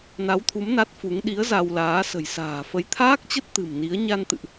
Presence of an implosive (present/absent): present